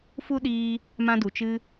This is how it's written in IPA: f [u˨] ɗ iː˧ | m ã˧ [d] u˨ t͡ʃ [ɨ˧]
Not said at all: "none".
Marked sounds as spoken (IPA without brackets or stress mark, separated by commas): u˦, d, ɨ˧